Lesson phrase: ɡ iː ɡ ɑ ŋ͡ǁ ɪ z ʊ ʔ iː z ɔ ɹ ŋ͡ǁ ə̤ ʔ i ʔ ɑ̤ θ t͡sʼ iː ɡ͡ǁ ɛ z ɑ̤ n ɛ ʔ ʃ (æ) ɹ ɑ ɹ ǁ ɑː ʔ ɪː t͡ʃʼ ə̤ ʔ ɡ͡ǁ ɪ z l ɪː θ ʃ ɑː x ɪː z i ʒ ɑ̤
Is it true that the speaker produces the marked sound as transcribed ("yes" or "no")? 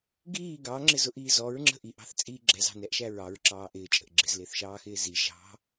yes